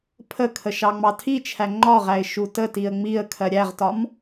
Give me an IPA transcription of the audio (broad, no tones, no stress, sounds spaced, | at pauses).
pʰ ə kʰ ə ʃ ɑ ŋ͡m ɑ tʰ i t͡ʃʰ æ ŋ͡ǃ ɒ ʁ æ ɪ̯ ʃ u t ə t i ə̯ ŋ͡m i ə̯ kʰ ɜ ɾʲ æ ʁ t ɒ m